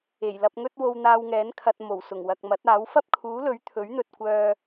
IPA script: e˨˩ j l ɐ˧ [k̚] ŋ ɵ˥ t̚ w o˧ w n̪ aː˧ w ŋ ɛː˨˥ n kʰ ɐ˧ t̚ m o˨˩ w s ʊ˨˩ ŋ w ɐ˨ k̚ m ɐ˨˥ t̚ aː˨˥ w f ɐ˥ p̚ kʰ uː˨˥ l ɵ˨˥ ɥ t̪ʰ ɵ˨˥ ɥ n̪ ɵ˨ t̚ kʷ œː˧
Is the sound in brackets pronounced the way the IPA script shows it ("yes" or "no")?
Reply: no